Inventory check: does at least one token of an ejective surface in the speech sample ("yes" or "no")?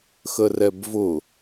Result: no